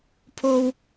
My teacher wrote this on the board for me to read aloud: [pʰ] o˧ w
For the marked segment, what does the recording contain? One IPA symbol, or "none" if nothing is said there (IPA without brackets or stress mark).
pʰ